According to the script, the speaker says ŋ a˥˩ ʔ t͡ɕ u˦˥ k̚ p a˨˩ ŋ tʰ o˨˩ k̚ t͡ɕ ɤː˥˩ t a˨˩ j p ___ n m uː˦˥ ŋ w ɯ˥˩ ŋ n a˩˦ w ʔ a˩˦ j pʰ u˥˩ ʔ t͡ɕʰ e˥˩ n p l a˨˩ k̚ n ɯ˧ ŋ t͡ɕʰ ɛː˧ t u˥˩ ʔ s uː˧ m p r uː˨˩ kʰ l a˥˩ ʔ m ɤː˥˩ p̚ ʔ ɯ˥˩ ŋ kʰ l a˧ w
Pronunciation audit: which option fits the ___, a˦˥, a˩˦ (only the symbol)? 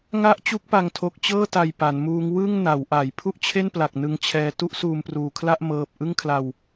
a˩˦